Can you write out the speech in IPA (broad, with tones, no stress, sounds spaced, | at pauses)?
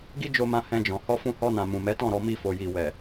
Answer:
ɡ i˦ d͡ʒ o˧ m ã˧ h ɛ̃˧ d͡ʒ ɔ̃˨ h ɔ˧ f ũ˧ h ɔ˧ n ã˨ m ũ˨ m ɛ˨˦ t ɔ̃˦˨ ɾ ɔ˧ m i˧ f o˨ j i˨ w ɛ˨